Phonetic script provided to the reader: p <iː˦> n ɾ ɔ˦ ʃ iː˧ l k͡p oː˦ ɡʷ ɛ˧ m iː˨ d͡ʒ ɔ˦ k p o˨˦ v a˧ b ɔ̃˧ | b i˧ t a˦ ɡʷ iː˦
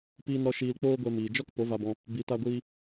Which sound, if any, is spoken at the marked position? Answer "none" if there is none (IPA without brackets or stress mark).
iː˦